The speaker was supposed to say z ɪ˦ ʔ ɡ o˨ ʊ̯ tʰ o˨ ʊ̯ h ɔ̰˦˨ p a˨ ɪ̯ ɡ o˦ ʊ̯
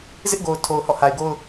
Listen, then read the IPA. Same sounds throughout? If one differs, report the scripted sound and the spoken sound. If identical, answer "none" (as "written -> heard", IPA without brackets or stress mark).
p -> h